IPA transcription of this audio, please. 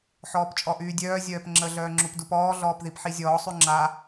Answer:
ħɔːpt͡ʃʼɔʔyːdʲœː zʲœːpŋ͡ǁə ɮœːŋ͡ǁupdupɔː ɮɔːpðipħizʲɔː sˤyŋ͡ǁa

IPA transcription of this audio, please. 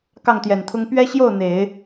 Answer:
kɑ˥˩ŋt̪jɛ˨˩nt̪ʰʊ˥ŋ pɥɛ˥ ɕjo˥˩ʊ̯ n̪e˨˩˦ɪ̯

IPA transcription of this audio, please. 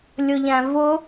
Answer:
lʲʊʎæ̃vʊ

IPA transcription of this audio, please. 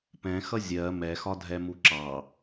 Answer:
pɛ̃xʌ zʲɜ mɛxɒdʱɛmu ǁɑ

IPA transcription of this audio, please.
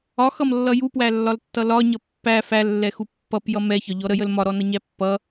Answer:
ɒxʌmlːʌ jupwælːɒltːʌ lɒɲʌ pːæ fælːɛxu pːʌpjʌ mɛçɒʎɔ ɾəjəl mɒɾɔnʌɲæ pːʌ

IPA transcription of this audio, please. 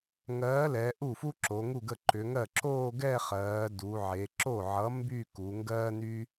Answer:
ŋɜː˨˥lɛ˩˧ ʔu˥˩fu˥ ǁo˩˧ŋu˥˩ɡə˥˩ ǃʏ˩˧ŋɜ˥˩ ǁoː˥˧ɡɛ˥˧χɜː˩˧ du˩˧ʕe˩˧ ǁo˥˩ʕʌ˨˥ mby˥˧ ku˩˧ŋɡɜː˥ny˥

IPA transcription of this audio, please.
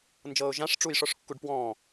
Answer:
nd͡ʒɤːʊ̯ʒãʂʈ͡ʂuj ʂɔʂkːuɖpwɔ̃ː

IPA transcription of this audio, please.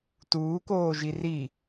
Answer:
tuːkoːʒi ri

